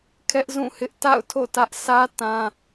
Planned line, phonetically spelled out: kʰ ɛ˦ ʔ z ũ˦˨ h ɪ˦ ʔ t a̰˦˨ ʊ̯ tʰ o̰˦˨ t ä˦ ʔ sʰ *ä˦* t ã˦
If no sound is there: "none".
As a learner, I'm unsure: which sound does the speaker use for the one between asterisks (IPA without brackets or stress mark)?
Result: ä˦